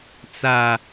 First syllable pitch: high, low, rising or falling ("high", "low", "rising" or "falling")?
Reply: high